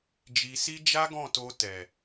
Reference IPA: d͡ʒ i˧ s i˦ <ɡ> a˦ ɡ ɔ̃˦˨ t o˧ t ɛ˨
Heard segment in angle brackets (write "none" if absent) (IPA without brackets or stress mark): d͡ʒ